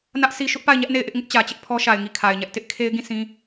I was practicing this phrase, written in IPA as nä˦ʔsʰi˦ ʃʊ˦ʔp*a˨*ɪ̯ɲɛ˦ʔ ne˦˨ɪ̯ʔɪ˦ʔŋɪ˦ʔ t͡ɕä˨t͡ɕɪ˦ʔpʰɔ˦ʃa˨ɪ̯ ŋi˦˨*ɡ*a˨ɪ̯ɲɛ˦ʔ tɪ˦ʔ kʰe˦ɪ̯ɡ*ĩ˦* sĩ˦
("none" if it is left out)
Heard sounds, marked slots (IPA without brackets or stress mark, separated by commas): a˦˨, kʰ, ĩ˦˨